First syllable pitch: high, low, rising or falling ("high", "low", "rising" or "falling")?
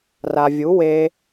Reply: low